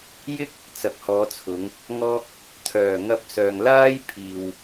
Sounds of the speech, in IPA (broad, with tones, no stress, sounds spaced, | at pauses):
j ɪ˥ k̚ | t͡s ɐ˨˥ k̚ h ɔː˨˧ t͡sʰ ʊ˨˧ ŋ | ŋ ɔː˥ k̚ | t̪ʰ œː˨˩ ŋ ɐ˧ p̚ s œː˨ ŋ l aː˥ j pʰ iː˨ w